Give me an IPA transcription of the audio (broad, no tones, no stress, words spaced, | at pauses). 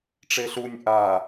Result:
ʈ͡ʂeɬunʲ ʔa